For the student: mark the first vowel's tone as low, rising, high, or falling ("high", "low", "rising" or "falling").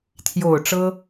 low